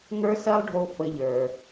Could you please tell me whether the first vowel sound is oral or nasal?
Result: oral